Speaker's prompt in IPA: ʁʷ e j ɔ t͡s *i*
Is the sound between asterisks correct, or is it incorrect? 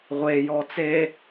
incorrect